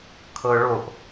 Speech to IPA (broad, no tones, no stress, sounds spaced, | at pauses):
kʰ ɤ ɭ o ʔ